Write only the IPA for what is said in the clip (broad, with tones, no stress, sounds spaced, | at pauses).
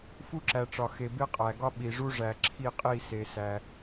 f u˦ ǁ æ˨ ʈ͡ʂ ɒ˨ x e˨ b e˦ qʼ æ˨ ɡ ɒ˦ ɓ i˨ ʐ u˦ ʐ æ˨ ǁʰ i˦˨ qʼ i˦˨ s e˧ s æ˧